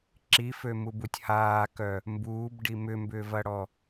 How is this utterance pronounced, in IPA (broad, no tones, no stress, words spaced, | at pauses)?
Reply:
ǁifømubutʲ haːkœ | mbuːbɖi mʏmbʏːvɐɽɔ